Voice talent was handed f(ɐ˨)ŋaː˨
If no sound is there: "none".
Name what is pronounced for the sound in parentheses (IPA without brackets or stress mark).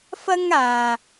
ɐ˥